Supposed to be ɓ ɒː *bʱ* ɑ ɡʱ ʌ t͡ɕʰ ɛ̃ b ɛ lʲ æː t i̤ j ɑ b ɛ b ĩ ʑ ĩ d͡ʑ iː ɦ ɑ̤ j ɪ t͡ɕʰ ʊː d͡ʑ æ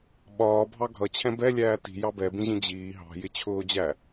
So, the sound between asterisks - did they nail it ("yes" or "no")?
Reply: yes